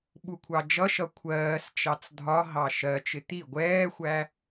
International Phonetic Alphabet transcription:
ɓ u kʷʰ ɑ d͡ʒ ʌ ʃ ʌ kʷʰ ɜː s t͡ʃ ɑ t͡s dʱ ɒ ɦ ɑ ʃ ɜ t͡ʃ ɪ t̪ i ɡʷ ɛː xʷ æ

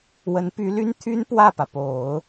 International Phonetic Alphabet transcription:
w ə˧˥ n p y˧˥ l y˥ n t̪ʰ y˥ n p w ä˥˩ p ä˩ p o˨˩˦ ʊ̯

